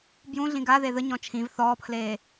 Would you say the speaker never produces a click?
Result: yes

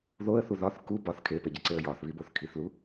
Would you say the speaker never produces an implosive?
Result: yes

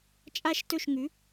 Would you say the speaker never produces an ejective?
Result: no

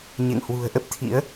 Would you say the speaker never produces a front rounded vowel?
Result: yes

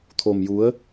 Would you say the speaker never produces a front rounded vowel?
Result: yes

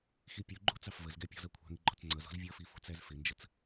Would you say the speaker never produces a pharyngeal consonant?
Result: yes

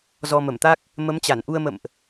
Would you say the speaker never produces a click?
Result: yes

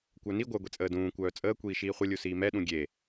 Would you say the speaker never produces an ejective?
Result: no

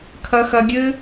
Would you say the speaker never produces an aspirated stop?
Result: no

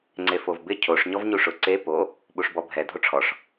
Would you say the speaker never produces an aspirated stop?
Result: no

